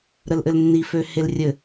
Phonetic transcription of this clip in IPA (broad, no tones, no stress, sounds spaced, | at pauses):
ɾ ə l ʔ ɘ l nː i f ø h e l rʲ ɘ